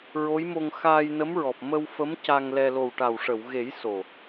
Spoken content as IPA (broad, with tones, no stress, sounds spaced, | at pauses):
ɹ o˧˥ j m o˧ ŋ x aː˧ j n ə˧˥ m ɹ ɔ˨˩ p̚ m ə˧ w f ə˧˥ m c a˧ ŋ l ɛ˧ l o˨˩ w ʈ a˨˩ w ʂ ə˨˩˨ w ɣ e˨˩˦ j s o˨˩